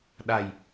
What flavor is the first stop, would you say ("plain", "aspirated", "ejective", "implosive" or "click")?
implosive